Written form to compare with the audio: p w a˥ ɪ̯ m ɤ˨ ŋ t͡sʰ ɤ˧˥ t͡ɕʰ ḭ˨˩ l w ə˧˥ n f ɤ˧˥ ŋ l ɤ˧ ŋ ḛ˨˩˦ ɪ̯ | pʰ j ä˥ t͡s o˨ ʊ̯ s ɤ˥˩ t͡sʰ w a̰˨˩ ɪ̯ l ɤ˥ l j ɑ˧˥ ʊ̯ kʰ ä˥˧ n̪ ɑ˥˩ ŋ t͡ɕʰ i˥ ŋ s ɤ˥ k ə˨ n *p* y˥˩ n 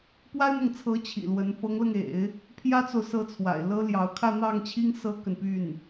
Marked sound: correct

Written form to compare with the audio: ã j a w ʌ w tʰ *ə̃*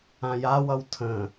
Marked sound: correct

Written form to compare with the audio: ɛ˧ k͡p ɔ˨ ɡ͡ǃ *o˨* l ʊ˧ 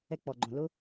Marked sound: incorrect: õ˨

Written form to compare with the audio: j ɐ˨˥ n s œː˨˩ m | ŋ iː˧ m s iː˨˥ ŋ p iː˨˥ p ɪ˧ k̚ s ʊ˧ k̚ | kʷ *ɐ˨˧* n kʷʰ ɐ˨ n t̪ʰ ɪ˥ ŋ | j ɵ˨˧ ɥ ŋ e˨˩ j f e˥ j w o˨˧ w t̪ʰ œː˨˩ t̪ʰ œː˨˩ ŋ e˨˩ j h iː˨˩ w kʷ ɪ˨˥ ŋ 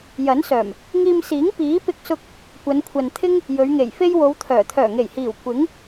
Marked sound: correct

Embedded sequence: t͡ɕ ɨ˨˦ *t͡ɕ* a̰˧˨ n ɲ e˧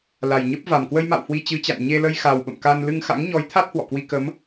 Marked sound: correct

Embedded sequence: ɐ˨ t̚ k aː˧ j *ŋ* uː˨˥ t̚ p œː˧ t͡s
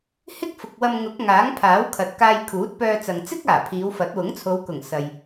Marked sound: incorrect: kʰ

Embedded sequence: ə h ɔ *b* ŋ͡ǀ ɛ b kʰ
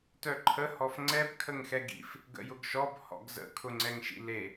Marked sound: incorrect: f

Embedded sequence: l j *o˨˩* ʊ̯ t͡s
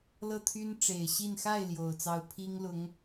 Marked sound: correct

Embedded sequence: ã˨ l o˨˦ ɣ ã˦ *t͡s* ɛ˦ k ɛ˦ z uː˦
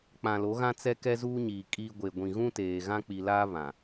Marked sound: correct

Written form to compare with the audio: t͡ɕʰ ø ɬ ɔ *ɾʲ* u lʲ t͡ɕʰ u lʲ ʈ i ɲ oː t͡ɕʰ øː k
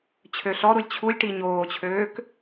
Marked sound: incorrect: ɾ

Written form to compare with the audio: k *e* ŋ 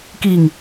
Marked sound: incorrect: i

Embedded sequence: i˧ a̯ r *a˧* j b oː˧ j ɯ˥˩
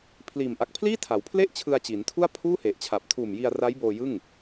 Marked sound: incorrect: a˦˥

